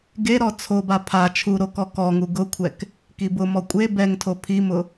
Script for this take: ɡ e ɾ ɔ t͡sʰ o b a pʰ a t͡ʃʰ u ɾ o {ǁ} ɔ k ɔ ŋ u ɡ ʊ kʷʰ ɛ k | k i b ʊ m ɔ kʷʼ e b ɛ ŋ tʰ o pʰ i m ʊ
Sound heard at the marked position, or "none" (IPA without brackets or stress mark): k